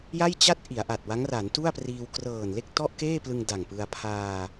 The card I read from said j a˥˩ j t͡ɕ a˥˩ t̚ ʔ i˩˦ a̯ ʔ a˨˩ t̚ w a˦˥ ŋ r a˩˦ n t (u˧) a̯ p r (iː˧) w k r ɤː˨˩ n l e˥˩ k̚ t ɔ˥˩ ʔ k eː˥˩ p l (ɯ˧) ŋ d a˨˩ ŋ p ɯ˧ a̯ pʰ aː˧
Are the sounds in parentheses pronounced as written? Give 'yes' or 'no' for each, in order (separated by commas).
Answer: no, yes, yes